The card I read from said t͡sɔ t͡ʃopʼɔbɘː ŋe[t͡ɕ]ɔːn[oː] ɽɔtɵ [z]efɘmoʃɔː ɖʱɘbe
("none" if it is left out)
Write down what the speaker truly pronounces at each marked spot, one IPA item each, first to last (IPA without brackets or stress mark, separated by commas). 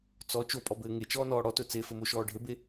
t͡ʃ, ɔː, t͡s